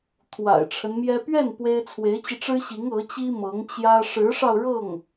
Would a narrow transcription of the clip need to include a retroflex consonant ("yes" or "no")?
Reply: yes